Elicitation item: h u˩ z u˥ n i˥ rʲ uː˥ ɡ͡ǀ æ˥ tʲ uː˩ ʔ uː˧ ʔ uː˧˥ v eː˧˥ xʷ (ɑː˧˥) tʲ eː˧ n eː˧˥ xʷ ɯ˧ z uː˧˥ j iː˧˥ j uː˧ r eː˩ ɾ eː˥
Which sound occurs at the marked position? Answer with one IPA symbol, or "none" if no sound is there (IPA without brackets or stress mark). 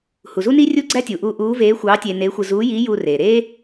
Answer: ɑː˧˥